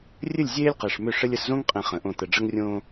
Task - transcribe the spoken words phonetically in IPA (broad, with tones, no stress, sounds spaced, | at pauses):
rʲ ɘ˦˨ lʲ zʲ eː˦ lʲ q e˨ ʂ m ʏ˦˨ ʂ ɘ˦ lʲ ə˨ s z õ˦ ŋ qʼ ẽ˨ χ ə̃˨ ʔ õ˦˨ t̪ ə˨ ɖ͡ʐ ə˦ ŋ rʲ õː˦